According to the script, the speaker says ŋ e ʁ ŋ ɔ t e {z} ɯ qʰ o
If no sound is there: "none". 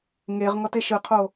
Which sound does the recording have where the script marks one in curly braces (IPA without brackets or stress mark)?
ʃ